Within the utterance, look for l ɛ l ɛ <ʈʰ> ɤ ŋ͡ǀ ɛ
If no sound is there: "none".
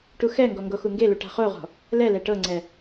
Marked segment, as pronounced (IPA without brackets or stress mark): ʈ